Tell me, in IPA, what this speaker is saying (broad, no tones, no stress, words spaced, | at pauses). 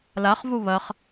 laχvu βɐχ